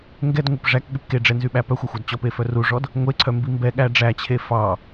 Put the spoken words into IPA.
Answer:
ŋ ɡ ɛ d ŋʷ œ p ʐ æ k ɠ y p k e ɖ͡ʐ ɛ n z y ɓ æ p œ xʷ æ xʷ ɑ d t͡ɕ ɔ p e f œ r u ʐ ɔ d | ŋʷ e ǀʰ œ m b i m b ɛ ɠ æ ɖ͡ʐ æ t͡ɕʰ e f ɑ

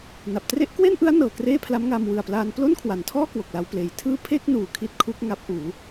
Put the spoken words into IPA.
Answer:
n a˨˩ p̚ t r e˦˥ ʔ k w e˥˩ n ʔ ɯ˦˥ a̯ n ɤː˨˩ k r eː˥˩ pʰ l a˦˥ m ŋ aː˧ m w ɯ˨˩ a̯ p l aː˧ n p l o˥˩ n kʰ w a˩˦ n tʰ ɔː˥˩ k w o˨˩ k̚ l a˧ w p l eː˨˩ j tʰ ɯː˥˩ pʰ e˥˩ k̚ n uː˨˩ kʰ i˦˥ t̚ kʰ u˦˥ k̚ ŋ a˦˥ p̚ ʔ uː˩˦

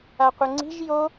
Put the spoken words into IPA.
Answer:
a qʷ ɪ ŋ͡ǀ i̤ ʒ j o

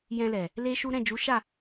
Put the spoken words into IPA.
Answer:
j ɛ̃˧ l ɛ˨ | l e˦ ʃ u˦ ɾ ɛ̃˦˨ d͡ʒ u˨˦ ʃ a˦˨

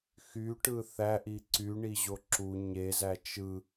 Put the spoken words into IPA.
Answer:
x y ʈ ɯ θ æ ʔ i ǀ y ɳ i ʑ o ǁ u ɲ e z æ t͡ʃ ɯ

